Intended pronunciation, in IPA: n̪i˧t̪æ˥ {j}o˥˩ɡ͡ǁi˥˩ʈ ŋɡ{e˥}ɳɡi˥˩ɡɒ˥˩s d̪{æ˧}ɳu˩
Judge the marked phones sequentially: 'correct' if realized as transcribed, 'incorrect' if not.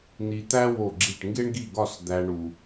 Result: incorrect: w, correct, correct

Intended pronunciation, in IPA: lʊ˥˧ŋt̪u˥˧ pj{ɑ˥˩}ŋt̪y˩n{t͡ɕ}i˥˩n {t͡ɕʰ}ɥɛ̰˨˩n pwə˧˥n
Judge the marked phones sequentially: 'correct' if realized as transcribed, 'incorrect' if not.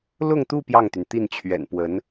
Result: correct, incorrect: t̪, correct

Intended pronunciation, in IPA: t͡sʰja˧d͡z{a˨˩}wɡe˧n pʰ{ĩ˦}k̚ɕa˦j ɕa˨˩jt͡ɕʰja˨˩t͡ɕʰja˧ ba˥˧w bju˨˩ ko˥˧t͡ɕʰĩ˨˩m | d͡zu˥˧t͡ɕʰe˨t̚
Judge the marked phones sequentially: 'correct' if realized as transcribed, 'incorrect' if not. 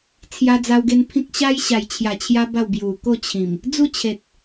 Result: incorrect: a˧, correct

